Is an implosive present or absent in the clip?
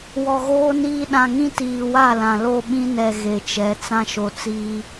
present